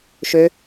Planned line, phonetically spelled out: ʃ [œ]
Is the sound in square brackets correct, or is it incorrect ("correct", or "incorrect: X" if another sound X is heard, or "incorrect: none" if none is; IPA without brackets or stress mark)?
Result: incorrect: ø